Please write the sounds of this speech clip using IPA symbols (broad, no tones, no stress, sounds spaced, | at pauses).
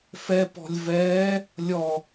f ɛ p ɔ̤ lʲ v ɛː | lʲ ɔ